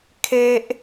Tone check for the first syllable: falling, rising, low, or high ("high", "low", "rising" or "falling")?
high